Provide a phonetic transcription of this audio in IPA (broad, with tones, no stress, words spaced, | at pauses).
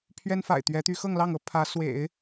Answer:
pʰɥɛ˥nfa̰˨˩ɪ̯t̪ɥɛ˧˥t̪y˧˥ xɤ˥˧ŋlɑ˥˩ŋɤ˧˥ pʰä˧˥swḛ˨˩˦ɪ̯